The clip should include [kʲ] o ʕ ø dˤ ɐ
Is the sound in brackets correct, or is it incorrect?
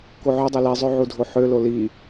incorrect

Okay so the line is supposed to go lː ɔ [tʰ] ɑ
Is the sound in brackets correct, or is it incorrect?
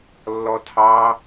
correct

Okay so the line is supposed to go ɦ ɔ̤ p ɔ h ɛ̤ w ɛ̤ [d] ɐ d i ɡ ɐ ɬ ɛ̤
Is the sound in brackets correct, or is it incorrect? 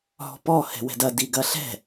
correct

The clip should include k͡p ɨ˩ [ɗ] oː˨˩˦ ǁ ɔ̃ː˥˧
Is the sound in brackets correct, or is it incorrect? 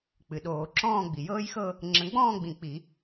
correct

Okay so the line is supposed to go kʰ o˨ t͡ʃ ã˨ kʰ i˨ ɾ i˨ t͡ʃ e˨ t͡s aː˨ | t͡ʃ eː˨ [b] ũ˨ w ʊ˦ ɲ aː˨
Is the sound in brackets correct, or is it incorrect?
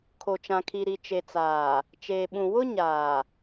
incorrect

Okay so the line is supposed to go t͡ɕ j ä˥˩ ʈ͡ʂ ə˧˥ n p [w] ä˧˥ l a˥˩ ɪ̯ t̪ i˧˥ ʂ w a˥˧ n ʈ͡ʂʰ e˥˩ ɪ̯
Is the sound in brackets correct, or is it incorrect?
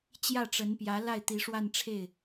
incorrect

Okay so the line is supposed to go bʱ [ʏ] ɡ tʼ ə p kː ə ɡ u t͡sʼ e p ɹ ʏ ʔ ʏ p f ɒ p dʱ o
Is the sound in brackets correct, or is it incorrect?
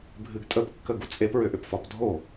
incorrect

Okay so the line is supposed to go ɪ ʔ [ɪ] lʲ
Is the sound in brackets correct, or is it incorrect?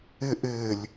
incorrect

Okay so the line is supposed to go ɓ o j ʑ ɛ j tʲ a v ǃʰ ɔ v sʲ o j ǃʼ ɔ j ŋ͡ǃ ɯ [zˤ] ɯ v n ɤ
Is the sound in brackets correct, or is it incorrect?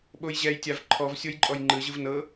incorrect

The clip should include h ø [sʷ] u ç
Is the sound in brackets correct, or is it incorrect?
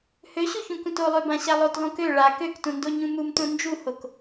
incorrect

